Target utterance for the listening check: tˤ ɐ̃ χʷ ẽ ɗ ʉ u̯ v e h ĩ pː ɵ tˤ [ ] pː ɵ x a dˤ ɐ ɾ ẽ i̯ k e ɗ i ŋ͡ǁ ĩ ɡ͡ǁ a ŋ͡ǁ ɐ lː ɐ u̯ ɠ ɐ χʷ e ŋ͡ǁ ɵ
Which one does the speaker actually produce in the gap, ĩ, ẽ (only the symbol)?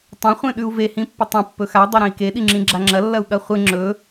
ẽ